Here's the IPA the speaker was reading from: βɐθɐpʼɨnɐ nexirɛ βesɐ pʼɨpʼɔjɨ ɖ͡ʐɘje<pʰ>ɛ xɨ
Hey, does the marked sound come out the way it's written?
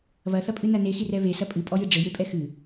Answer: no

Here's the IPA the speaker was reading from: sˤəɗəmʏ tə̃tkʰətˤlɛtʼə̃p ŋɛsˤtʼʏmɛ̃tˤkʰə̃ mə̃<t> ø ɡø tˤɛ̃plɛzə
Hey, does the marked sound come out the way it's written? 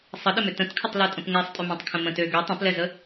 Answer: yes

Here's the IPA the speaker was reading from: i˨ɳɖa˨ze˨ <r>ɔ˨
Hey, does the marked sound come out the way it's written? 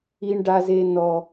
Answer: no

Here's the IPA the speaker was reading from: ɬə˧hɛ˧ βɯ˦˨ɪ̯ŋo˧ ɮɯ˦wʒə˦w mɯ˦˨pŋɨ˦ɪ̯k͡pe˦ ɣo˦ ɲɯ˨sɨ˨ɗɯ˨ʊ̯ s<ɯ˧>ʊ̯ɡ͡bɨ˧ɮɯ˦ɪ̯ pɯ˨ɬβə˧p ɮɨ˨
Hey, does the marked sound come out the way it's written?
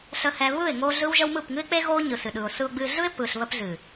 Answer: yes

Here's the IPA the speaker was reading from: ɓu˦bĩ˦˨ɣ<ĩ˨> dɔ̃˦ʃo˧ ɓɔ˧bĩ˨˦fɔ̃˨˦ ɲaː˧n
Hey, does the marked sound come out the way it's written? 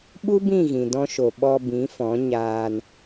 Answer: yes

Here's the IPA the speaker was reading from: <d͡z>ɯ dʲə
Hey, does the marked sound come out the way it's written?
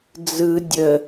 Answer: yes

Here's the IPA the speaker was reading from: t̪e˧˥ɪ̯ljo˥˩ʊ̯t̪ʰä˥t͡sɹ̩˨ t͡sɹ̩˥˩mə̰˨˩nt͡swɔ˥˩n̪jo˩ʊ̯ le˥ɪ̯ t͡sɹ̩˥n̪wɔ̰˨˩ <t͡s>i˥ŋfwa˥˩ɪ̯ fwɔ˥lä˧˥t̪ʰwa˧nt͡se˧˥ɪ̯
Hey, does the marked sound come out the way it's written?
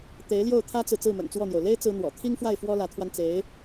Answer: no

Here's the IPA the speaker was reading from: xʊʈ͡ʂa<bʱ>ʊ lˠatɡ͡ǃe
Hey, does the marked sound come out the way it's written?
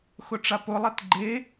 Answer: no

